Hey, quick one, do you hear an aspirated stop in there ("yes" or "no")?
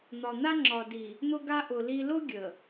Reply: no